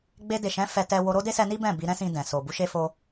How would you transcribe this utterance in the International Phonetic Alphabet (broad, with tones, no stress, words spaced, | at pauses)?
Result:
ɡ͡be˧de˨ʃɛ̃˨˦ fɛ˧tɛ˧ wo˧ɾo˦ de˦sɛ˧ni˦ bɛ̃˦˨bi˧ ɾɛ̃˦sĩ˧ dɛ̃˨ so˨bu˨˦ ʃe˧fo˧